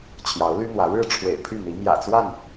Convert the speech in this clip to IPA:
t͡ɕʰjɑ˨˦ʊ̯ly˦n̪wä˨˦ ɻɻ̩˥˨ ʈ͡ʂʰwḛ˨˩ɪ̯pʰy˥˨n̪i˨˦ mjä̰˨˩t͡swa˥˨n

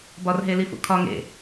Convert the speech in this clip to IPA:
bɒrɦelifṵ kʰɒ ŋḛ

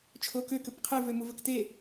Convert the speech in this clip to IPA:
t͡ʃʰokø køpqʰe vømuvəkte

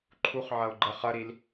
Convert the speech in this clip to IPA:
ǃʰuχʕɐʊ̯ ɡ͡ǃə χɐɾil

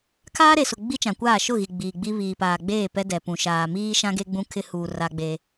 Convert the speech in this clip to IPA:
kʰaː˦ɾe˨sʊ˨ ɡ͡bi˦t͡ʃã˨kʷaː˦˨ ʃʊ˦˨ɣi˨ ɡ͡biː˨ɡ͡bi˦ βiː˨paː˨ɡ͡beː˦˨ pɛ˦dɛ˨pũ˨ ʃaː˨miː˦ ʃã˦ɡe˦ɡ͡bũ˦ kʰɪ˦huː˨ ra˦ɡ͡be˦

